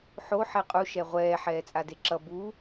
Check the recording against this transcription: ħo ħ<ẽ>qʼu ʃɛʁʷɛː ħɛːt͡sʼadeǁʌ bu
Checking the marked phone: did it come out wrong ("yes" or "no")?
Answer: yes